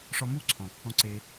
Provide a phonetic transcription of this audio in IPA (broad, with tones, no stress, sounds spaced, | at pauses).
ʂ ɔ˧ m u˦˨ ǀʰ ɔ̃˨ kː ɔ̃˦ ǀ e˧